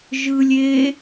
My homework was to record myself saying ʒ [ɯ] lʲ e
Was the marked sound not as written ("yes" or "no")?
no